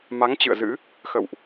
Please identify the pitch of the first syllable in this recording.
rising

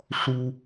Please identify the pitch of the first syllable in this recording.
high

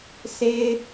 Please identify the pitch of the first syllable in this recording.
high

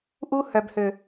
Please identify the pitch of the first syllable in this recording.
high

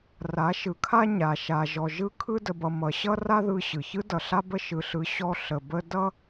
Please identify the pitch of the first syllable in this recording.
rising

